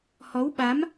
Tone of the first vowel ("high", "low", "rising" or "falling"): rising